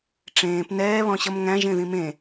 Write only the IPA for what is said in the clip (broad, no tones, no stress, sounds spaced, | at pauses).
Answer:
ʈ͡ʂ ẽː p n ɛː β ɔ̃ ɕ ʌ m ŋ æ̃ ʒ ẽ ð ĩ m ẽ